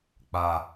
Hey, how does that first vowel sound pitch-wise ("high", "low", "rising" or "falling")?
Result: low